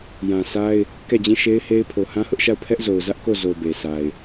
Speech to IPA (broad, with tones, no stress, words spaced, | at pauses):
jã˨sʰa˦ɪ̯ | kɛ˦˨d͡ʑĩ˦˨ʃe˦ɪ̯he˦ɪ̯ pʰo˨hã˦hʊ˦ʔʃa˦˨ʊ̯ pʰɛ˦ʔzo˨ʊ̯zä˦ʔ ko˦˨zo˨ be˨sʰa˨ɪ̯